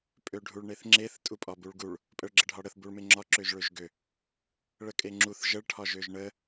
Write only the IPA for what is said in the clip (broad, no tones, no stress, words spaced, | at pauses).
pʼøɖʱuɭɳeθŋ͡ǁeθ tʼupʼɒbuɭɡuɭ | pʼəɭɡ͡ǁəɖʱɒɽəθ buɭmeŋ͡ǁɒ ǁøʒɭøʒɡø | ɭəkʼeŋ͡ǁuθ ʒəɭ ʈʰɒʒøʒɳə